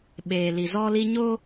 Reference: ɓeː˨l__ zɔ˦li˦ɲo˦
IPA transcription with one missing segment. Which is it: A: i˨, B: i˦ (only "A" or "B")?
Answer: A